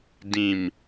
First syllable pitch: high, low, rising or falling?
falling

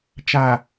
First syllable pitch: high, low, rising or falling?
low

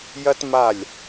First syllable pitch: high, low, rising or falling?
high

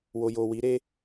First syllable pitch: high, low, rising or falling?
low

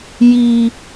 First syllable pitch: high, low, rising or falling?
low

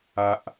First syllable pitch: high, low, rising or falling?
low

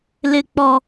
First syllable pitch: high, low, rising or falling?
low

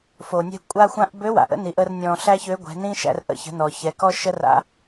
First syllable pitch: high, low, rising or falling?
low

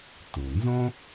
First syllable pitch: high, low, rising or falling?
low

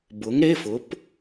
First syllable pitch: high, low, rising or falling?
rising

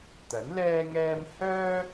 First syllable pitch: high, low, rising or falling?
rising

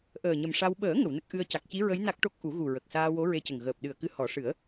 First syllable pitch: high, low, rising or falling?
low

